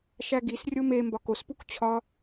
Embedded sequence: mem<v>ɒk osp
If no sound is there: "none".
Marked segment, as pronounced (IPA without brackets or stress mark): b